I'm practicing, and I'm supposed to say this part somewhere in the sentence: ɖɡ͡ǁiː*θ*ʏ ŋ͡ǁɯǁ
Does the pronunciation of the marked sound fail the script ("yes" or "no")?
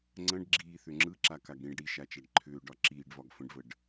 no